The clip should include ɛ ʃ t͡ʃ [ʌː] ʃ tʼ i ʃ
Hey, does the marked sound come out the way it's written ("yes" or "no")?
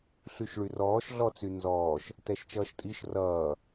yes